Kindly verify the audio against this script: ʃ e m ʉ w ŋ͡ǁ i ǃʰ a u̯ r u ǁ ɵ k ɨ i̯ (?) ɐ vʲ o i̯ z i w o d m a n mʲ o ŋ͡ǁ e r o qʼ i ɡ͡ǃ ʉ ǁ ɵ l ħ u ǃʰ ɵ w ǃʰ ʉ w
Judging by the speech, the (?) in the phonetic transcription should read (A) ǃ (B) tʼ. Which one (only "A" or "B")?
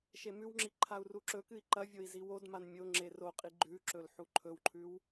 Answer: A